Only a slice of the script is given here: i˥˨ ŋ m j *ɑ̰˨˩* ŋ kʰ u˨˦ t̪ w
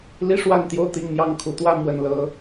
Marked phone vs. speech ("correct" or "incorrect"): incorrect